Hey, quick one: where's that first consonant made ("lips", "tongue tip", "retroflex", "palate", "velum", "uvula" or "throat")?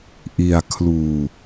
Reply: throat